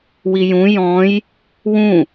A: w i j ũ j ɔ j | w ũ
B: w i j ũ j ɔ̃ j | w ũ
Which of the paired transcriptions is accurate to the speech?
B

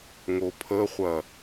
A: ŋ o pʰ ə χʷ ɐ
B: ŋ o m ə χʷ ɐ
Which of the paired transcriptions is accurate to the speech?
A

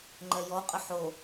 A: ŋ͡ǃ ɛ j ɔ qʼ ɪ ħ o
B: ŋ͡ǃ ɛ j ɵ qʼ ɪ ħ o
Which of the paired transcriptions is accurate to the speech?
A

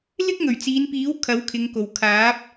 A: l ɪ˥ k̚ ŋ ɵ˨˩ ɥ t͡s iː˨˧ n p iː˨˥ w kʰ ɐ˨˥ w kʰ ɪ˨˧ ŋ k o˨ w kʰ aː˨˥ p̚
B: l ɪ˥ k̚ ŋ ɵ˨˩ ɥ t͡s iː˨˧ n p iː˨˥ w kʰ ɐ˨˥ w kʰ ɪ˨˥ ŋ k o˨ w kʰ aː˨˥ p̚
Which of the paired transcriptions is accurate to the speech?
A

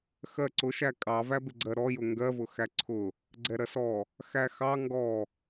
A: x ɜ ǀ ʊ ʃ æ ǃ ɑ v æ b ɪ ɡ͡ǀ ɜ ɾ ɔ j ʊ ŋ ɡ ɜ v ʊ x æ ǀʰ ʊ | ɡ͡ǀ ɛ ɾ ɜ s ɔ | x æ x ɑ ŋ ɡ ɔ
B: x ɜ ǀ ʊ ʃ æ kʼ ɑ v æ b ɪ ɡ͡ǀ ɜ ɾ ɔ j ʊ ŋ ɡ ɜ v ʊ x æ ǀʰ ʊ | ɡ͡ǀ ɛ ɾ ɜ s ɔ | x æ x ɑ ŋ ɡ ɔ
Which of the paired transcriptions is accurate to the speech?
B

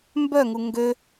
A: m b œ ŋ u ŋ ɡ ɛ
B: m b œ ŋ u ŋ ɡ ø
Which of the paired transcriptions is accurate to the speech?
B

